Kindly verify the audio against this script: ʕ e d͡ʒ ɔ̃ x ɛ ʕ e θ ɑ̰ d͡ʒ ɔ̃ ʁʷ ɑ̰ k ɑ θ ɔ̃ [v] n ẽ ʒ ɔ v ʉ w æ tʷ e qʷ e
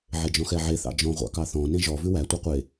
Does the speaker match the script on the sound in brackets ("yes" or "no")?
no